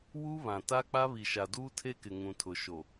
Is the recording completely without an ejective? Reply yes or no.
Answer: yes